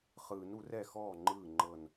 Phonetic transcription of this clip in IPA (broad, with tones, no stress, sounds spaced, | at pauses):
χ ɯː˨˩˦ n u˨˩˦ r ɛ˥˩ x ɔː˥˩ ŋ͡ǃ ɯː˥˩ ŋ͡ǃ ɤ˧˩ n